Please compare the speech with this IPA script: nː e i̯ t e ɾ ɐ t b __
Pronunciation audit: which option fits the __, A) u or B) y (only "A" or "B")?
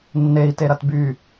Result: B